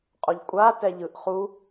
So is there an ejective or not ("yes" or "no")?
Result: yes